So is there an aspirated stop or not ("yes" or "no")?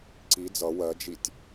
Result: no